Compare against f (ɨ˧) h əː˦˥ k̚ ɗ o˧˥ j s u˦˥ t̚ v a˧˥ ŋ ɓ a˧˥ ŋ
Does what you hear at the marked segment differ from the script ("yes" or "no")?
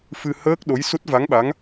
no